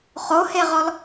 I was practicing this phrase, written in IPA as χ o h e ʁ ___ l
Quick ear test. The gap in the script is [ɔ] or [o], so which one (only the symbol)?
ɔ